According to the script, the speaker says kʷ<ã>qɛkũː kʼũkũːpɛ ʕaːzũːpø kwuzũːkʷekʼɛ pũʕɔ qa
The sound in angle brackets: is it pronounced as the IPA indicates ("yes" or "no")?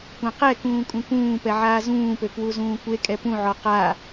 yes